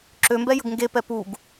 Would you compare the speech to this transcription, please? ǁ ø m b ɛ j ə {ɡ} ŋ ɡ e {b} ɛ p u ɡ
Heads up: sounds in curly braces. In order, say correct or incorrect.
correct, incorrect

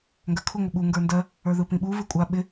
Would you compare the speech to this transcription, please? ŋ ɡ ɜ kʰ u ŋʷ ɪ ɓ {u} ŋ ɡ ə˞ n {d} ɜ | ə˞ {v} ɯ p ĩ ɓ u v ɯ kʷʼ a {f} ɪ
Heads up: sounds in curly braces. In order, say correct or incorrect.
correct, correct, incorrect, incorrect

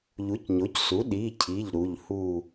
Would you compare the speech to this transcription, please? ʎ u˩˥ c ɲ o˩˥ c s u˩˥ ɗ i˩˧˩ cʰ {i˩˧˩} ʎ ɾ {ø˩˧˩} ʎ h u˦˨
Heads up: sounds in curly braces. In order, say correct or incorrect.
correct, incorrect

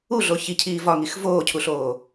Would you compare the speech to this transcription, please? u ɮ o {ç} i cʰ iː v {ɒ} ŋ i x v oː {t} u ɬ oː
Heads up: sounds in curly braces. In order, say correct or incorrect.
correct, correct, incorrect

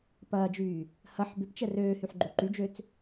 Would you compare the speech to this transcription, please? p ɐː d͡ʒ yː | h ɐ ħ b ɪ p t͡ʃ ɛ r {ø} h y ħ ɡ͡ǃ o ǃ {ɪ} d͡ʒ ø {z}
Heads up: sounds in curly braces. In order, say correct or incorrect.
incorrect, incorrect, incorrect

